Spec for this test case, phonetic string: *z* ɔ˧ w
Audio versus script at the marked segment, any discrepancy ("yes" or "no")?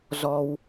no